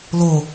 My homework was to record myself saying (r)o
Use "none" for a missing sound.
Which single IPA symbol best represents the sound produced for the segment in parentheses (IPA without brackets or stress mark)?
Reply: l